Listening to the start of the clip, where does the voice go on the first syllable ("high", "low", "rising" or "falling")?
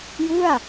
falling